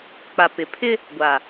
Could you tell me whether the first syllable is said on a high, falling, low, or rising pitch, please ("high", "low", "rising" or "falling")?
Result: low